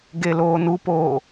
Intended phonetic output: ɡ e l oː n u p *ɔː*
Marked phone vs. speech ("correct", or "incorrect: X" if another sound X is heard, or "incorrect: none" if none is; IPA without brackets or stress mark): incorrect: oː